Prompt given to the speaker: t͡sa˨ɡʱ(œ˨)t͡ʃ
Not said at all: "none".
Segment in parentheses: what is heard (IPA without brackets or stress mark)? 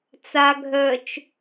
œ˨